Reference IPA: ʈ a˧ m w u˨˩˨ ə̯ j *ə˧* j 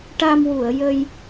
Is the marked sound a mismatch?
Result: no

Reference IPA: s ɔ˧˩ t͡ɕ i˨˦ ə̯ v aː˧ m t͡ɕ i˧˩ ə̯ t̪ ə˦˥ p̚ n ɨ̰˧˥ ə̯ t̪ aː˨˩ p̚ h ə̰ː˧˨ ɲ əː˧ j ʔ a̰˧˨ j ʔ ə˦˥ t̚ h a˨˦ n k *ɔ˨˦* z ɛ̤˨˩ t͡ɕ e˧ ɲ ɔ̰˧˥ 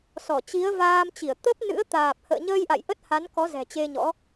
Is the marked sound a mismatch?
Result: no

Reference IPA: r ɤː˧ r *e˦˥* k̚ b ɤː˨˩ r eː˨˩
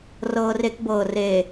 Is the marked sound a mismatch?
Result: no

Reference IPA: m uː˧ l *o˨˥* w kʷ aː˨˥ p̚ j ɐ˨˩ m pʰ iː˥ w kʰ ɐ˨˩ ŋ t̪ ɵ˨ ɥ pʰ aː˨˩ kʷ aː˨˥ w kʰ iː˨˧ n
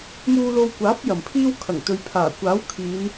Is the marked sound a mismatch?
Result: yes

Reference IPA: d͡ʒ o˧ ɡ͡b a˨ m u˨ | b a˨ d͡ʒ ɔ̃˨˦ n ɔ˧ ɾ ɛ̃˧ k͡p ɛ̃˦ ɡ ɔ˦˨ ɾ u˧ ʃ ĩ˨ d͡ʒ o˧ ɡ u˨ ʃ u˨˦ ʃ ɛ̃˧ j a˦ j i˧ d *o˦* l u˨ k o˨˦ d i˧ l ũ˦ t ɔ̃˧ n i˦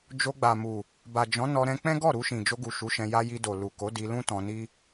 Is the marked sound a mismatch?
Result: yes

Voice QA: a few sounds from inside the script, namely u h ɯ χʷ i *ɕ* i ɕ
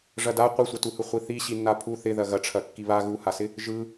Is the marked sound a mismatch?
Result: yes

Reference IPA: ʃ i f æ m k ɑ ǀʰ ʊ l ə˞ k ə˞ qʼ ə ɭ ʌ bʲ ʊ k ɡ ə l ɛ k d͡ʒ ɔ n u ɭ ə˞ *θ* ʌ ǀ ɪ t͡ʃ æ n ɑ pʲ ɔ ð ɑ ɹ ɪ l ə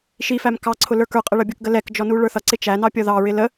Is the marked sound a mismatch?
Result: no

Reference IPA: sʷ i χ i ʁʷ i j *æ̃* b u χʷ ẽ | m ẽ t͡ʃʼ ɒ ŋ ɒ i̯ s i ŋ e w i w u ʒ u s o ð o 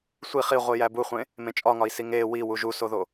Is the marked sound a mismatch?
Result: yes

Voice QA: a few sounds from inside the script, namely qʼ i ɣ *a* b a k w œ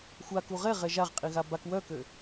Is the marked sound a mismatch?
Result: no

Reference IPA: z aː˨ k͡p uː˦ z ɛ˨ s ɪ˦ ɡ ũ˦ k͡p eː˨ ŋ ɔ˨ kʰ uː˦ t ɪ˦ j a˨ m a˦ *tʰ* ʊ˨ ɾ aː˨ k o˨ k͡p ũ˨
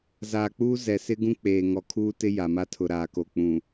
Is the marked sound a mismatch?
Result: no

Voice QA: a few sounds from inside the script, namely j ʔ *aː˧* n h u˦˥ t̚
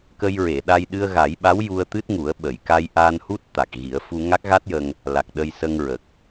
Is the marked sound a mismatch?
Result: no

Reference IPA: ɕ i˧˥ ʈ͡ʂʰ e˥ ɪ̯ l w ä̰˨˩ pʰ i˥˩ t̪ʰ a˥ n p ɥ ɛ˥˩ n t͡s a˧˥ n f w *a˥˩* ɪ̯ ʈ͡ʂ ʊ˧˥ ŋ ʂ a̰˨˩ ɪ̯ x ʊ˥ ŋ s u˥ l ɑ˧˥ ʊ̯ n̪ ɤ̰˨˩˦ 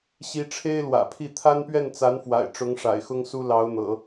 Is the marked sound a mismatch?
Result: yes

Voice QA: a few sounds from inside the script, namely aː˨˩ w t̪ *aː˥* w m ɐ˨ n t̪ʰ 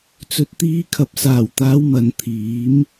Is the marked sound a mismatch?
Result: yes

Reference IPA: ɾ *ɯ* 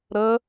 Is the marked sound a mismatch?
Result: yes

